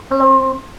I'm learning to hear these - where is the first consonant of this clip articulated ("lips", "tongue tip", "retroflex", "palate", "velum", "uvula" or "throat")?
tongue tip